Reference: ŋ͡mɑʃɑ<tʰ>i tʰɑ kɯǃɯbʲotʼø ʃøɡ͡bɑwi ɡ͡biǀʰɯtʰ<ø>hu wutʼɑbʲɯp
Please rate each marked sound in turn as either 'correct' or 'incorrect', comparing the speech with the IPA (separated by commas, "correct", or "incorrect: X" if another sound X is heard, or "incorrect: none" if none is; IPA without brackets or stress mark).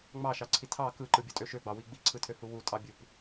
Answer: incorrect: ǀʰ, correct